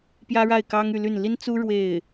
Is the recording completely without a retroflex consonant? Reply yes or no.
no